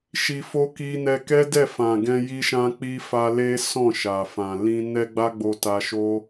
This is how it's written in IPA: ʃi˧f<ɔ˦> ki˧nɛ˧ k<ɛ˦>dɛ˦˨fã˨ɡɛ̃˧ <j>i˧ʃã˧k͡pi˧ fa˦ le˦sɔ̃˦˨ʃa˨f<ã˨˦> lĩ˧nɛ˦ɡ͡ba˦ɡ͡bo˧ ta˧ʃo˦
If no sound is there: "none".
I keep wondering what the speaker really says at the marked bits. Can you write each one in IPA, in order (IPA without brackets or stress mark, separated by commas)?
o˦, ɛ˦, j, ã˨